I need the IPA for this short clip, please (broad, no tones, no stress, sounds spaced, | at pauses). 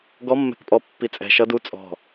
ɡ ɔ mː ɛ̤ k pʼ ɔ pː i t͡sʼ ɛ̤ ʃ ʌ d u t͡sʼ ɔ̤